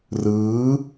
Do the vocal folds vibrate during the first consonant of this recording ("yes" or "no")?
yes